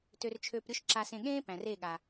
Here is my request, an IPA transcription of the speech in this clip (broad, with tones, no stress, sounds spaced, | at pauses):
t ø˧ r t͡ʃʰ øː˧ p ɾʲ o˦ ʃ ǁ a˧ s ẽ˧ ɠ ẽː˦ p æ̃˨ r e˦˨ ɠ a˨